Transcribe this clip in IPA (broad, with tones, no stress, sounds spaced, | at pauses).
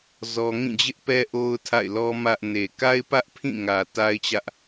z ɔ˦ ŋ ĩ˦˨ d͡ʑ ɪ˦ ʔ p ɛ˦ ʔ o˦ ʊ̯ tʰ a̰˦˨ ɪ̯ l ɔ˦ m ä˦ ʔ n e˨ k a˦ ɪ̯ p ä˦ ʔ pʰ ĩ˦˨ ŋ ä˨ t a˦ ɪ̯ t͡ɕ ä˦ ʔ